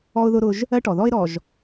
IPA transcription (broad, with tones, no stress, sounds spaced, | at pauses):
ɔ˦ ʊ̯ ð ʊ˦ ɾ ʊ˦ ʒ | ɜ˦ ʈ ɔ˨ ð ɔ˦ ɪ̯ ɾ ɔ˨ ʒ